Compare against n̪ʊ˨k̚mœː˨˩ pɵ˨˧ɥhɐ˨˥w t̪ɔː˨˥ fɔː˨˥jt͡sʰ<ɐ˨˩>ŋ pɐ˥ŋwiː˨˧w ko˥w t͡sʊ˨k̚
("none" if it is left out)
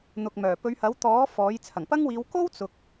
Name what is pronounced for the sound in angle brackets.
ɐ˨˩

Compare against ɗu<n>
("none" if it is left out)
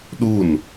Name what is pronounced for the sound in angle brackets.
n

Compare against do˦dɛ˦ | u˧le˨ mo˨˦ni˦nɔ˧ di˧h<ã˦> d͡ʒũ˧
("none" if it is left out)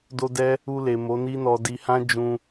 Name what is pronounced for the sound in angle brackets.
ã˦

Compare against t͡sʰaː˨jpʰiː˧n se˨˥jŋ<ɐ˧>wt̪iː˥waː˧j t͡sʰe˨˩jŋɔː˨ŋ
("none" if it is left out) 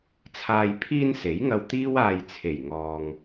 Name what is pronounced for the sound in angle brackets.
ɐ˧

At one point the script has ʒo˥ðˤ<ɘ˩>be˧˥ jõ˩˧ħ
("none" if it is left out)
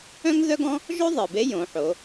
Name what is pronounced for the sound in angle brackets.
ɘ˩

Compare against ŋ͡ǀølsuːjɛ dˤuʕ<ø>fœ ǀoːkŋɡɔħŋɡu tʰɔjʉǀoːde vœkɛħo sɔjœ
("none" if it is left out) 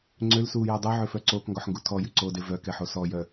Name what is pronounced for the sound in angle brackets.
ø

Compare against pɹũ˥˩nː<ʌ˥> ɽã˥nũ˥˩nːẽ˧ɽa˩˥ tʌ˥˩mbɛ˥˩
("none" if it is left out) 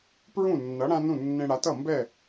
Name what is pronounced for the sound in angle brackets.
ʌ˩˥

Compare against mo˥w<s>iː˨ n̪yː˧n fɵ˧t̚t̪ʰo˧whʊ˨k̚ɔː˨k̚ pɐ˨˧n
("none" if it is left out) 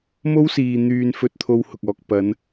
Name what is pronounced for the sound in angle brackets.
s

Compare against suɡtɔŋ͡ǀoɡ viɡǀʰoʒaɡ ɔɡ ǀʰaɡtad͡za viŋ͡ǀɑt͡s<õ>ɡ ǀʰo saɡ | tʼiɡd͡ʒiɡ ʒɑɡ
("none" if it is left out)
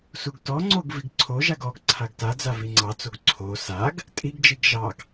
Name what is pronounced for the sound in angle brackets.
o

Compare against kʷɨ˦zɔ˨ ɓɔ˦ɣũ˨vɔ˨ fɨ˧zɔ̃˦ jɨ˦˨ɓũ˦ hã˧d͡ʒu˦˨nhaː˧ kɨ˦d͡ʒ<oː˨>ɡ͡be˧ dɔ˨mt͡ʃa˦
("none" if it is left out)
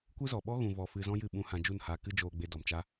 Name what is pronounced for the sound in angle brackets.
oː˧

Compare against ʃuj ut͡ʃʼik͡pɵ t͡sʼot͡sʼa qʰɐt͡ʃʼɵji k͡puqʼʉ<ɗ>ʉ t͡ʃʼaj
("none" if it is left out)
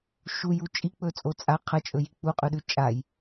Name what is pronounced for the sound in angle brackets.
ɗ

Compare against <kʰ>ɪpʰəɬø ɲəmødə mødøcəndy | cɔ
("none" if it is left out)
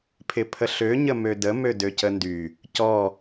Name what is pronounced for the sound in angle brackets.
pʰ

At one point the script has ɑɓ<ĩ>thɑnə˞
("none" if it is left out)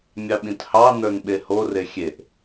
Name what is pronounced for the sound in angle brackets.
ĩ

